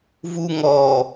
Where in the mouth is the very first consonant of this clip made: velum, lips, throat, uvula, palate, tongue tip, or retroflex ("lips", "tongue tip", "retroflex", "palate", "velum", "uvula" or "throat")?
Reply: lips